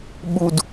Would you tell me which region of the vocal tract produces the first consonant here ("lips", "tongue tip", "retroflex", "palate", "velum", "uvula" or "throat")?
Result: lips